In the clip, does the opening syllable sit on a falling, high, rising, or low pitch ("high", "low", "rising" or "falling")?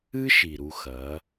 high